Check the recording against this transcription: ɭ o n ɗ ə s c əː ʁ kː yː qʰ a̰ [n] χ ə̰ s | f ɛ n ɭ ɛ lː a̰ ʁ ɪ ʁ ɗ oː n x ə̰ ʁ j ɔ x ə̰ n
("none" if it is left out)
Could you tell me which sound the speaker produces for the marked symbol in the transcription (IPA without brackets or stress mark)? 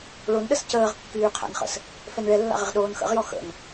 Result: n